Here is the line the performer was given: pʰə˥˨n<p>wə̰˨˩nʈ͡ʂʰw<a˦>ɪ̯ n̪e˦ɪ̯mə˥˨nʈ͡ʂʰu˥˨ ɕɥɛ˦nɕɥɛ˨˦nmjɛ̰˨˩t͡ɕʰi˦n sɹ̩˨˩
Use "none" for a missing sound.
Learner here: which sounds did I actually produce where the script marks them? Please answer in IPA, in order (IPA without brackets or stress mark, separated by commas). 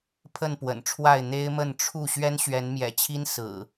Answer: p, a˥˨